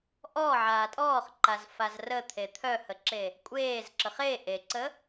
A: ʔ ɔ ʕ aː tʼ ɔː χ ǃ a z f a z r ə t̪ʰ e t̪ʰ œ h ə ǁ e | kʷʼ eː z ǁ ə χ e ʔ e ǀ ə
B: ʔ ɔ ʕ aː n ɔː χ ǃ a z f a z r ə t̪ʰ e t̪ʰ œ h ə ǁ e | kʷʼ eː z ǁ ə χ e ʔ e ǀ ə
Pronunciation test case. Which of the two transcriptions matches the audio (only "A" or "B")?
A